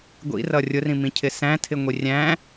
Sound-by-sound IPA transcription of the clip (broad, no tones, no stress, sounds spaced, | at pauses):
ɡʷ ḭ r ʌ rʲ ʊ r ĩ m ĩ cʰ ɪ s æ̃ tʰ ɪ ŋʷ i rʲ æ̃